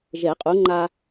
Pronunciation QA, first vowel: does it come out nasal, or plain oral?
oral